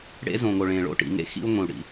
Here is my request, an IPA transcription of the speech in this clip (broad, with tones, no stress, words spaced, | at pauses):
ɽḛ˦zõ˨ŋo˨ɭẽ˨ ɭo̰˦ ʈḭ˨ŋḛ˦ xḭ˦u̯ŋʷĩ˨u̯ ɽḭ˨˦